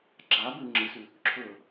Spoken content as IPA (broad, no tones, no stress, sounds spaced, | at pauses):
ɡ͡ǁ a b ʉ ŋ͡ǁ ɨ s ʉ | ǁʰ ɵ